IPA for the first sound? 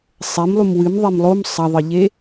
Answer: sˤ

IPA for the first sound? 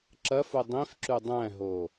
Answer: ǁ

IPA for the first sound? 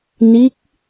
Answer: n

